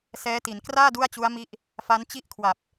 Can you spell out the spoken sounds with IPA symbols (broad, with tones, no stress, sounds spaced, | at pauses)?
s ɛː˦˥ t i˩˦ n k r aː˥˩ d u˥˩ a̯ t͡ɕ u˦˥ a̯ m i˦˥ ʔ | f a˦˥ n t͡ɕ i˥˩ ʔ kʰ w a˨˩ p̚